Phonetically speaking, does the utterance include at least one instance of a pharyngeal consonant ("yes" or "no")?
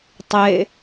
no